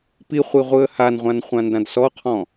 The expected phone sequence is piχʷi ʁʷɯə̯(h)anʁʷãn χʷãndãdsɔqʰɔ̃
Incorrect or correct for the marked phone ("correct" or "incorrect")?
correct